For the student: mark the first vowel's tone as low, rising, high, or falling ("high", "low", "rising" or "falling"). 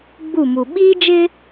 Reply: falling